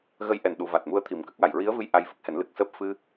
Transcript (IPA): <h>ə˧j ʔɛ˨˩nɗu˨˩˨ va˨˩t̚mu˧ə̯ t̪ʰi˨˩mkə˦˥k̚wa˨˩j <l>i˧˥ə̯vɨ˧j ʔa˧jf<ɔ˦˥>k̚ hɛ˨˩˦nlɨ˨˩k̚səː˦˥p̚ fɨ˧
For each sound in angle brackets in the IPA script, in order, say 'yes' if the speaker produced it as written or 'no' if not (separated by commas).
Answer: no, no, no